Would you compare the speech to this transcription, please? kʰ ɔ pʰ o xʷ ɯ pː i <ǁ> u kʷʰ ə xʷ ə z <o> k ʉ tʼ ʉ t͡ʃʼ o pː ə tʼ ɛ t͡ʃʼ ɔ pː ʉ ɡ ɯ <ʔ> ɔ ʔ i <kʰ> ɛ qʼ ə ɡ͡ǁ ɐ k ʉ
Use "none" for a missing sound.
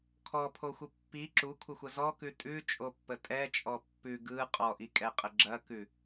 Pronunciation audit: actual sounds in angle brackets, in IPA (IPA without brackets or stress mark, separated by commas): ǁ, ɔ, qʼ, kʼ